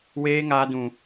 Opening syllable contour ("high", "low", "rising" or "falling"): high